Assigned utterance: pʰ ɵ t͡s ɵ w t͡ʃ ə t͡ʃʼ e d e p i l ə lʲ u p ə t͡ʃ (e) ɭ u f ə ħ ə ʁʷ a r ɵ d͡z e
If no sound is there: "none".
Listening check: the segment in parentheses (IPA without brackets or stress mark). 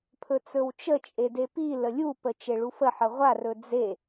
e